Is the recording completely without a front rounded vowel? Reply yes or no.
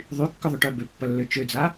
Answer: no